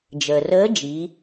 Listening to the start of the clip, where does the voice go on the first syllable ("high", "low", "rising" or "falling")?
low